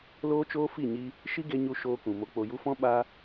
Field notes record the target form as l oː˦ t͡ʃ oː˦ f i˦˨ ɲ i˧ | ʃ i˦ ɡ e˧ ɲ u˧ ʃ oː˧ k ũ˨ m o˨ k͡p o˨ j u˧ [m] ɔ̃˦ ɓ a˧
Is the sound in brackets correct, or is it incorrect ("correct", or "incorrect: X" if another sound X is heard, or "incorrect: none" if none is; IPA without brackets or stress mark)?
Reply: incorrect: f